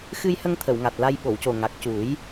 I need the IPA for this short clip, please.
x ɨ˧ j h ə˧ ŋ t̪ʰ ə˨˩˨ w ŋ a˨˩ t̚ l a˧ j ɓ o˨˩˨ w c o˨˩ ŋ a˨˩ k̚ c u˨˩˦ j

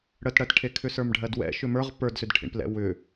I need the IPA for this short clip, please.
ɽ ə t ɽ ɜ t ʈʰ e kʰ ʏ s ə˞ m ɖʱ ɜ d w ɛ̰ ʃ ʏ m ə˞ ʁ p ə˞ d s ʏ d ʈʰ ḭ ɳ p l ɛ̰ w ʏ

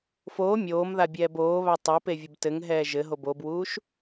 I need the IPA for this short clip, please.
f oː mʲ oː m ð a bʲ ɛː b oː β a tˤ o p e vʲ ə b t ɘ ŋ ɦ ɛː ʒ ɘ ɦ o b o b w uː ʃ

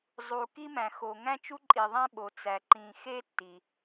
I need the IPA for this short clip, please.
zˤ u˩ k i˥ m æ̃˩ x o˩ ŋ æ̃˥ t͡ʃ u˥ ǃʼ i˩ ðˤ æ̃˥ ɓ o˩ t͡s æ˩ ǃ ĩ˩ x e˥ tː i˩

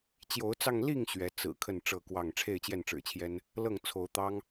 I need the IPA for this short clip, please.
t͡ɕ j o˨˦ ʊ̯ t͡s ɑ˧ ŋ l i˥˨ ŋ ɕ ɥ ɛ˨˦ t͡s ɹ̩˨˩ kʰ ə˥˨ n ʈ͡ʂ ɤ˥˨ k w ɑ˥˨ ŋ ʈ͡ʂʰ e˥˨ ɪ̯ t͡ɕ j ɛ˥˨ n ʈ͡ʂ ɻ̩˨˩ t͡ɕʰ j ɛ˦ n | l ɤ˥˨ ŋ t͡sʰ o˨˦ ʊ̯ t̪ ɑ˦ ŋ

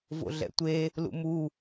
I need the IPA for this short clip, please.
v o̰ ɮ ɛ̰ tʷ e | l ṵ m u

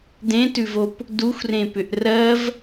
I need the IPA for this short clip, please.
d ẽ t ʉ v o p | d u xʷ r ẽ p ʏ ʔ r ɜ v

